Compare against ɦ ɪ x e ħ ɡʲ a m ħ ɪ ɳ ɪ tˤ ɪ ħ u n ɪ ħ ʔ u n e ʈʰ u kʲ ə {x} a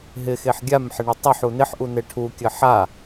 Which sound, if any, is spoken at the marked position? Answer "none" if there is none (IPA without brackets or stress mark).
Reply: ħ